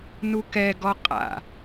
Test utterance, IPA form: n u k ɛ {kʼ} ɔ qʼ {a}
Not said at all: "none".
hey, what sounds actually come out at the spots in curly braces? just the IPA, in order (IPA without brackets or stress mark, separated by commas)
ɡ, a̰